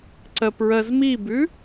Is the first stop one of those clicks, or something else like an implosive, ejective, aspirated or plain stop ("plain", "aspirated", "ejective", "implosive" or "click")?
click